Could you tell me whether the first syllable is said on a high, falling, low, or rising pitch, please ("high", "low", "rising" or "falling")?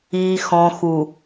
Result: low